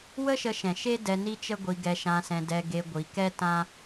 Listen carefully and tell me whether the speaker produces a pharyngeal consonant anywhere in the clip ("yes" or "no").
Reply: no